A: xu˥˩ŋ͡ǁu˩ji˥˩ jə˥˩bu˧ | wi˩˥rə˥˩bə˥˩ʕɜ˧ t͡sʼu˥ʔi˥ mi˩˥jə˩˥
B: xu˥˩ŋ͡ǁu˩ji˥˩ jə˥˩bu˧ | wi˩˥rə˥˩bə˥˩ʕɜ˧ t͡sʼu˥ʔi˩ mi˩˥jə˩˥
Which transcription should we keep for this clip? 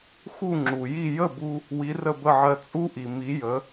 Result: B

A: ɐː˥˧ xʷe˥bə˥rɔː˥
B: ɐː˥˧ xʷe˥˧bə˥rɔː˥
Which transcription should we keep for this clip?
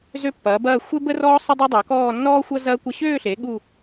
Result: A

